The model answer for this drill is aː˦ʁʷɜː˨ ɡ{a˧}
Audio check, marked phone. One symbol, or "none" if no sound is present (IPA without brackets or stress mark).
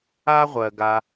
a˧